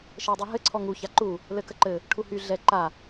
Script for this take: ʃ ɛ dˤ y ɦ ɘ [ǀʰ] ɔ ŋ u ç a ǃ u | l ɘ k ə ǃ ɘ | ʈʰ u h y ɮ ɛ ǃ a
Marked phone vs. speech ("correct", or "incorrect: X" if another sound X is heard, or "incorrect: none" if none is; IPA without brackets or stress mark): correct